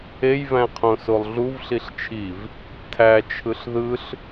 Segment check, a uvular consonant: present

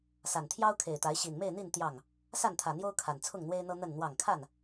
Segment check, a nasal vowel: absent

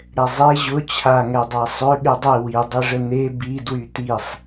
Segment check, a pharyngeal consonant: absent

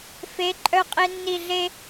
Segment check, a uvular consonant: present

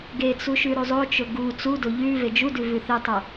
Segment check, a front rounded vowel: absent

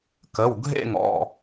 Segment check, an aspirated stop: absent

